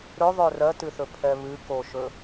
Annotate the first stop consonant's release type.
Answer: plain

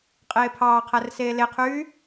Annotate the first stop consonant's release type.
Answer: ejective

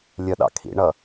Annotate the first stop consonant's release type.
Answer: implosive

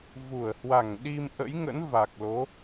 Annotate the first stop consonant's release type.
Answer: implosive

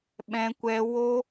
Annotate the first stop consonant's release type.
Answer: implosive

